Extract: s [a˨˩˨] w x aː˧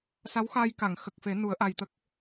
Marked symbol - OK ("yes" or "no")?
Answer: no